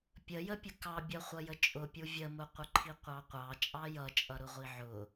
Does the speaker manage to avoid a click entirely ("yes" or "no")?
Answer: no